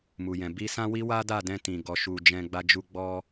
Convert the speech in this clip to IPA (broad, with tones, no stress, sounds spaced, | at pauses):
m u˨ j ɛ̃˨ b i˧ s ã˦ w i˦ w a˦ d a˦˨ d ɛ̃˧ t ĩ˨ ɡ ɔ˨ ʃ u˨ d͡ʒ ɛ̃˧ ɡ͡b a˧ d͡ʒ u˧ ɡ͡b ɔ˦